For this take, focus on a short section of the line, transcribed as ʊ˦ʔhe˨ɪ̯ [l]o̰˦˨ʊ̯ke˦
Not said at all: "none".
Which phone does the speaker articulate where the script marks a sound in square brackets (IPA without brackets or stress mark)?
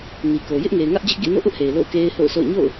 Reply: l